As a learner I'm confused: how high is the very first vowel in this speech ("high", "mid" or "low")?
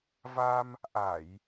low